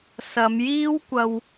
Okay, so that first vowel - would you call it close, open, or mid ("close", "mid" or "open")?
open